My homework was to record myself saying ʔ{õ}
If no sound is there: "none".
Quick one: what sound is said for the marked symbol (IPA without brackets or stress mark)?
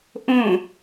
õ